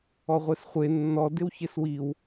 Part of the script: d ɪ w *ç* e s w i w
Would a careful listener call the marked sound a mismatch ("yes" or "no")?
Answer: no